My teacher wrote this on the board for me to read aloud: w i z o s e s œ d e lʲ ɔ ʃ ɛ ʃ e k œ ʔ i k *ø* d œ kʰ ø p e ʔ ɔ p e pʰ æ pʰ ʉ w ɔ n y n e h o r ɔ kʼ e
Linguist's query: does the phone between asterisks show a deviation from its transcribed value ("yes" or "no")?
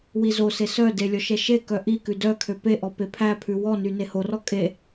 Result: yes